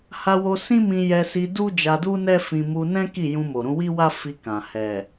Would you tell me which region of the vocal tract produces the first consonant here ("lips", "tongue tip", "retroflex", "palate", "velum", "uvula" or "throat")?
throat